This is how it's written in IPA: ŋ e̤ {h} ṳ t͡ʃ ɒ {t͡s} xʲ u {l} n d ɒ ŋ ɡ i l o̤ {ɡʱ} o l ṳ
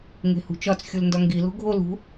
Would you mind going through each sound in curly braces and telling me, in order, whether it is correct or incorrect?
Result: correct, correct, correct, correct

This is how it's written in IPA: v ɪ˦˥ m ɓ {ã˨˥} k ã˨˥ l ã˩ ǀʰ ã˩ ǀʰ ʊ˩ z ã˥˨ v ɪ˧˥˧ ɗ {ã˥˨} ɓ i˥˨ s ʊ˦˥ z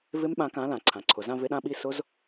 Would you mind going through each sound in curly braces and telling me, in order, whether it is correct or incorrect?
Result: correct, correct

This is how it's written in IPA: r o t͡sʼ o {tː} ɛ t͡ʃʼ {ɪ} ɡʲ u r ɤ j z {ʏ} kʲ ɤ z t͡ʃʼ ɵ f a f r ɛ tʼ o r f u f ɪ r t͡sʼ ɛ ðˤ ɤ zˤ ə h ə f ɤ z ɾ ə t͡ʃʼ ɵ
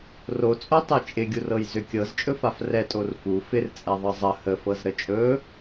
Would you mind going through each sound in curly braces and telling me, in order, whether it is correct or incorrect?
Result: incorrect, correct, correct

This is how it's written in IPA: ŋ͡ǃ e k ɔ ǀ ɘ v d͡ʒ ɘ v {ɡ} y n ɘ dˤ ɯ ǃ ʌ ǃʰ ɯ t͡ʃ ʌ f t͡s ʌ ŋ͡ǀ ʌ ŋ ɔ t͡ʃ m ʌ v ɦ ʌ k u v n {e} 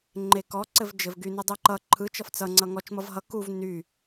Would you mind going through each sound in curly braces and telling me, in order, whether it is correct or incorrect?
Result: correct, incorrect

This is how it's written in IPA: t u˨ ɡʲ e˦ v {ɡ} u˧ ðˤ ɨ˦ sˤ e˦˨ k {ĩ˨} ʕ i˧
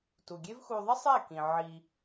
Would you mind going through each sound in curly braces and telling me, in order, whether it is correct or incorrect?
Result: incorrect, correct

